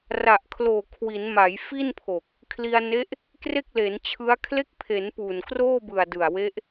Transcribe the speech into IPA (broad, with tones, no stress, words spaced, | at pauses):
ra˨˩ʔkʰloː˨˩ kʰwi˩˦nma˩˦jfi˥˩npʰo˨˩k̚ | kʰli˧a̯ne˦˥ʔ | kre˥˩k̚le˩˦nt͡ɕʰɯ˦˥a̯ kʰle˦˥k̚pʰe˩˦n puː˨˩n kroː˥˩bɯ˨˩a̯ dɯ˨˩a̯we˦˥ʔ